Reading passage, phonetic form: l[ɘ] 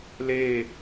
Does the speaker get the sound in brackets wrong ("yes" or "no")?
yes